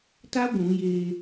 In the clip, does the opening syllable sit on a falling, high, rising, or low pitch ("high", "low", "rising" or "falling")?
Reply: high